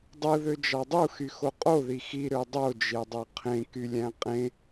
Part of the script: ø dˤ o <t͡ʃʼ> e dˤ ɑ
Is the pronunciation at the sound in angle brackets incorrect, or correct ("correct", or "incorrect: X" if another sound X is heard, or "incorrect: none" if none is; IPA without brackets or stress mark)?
incorrect: d͡ʒ